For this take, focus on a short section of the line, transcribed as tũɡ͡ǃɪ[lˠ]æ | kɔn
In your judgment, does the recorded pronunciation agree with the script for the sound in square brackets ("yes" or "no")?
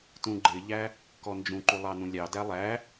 no